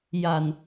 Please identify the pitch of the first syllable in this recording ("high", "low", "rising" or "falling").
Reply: low